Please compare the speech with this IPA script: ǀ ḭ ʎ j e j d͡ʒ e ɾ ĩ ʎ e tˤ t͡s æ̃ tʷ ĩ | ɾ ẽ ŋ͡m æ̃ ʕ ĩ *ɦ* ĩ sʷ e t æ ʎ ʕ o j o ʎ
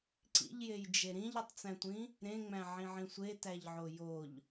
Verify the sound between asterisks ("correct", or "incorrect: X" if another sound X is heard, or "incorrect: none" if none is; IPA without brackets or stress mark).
incorrect: ʕ